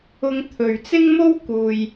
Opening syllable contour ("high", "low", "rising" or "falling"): high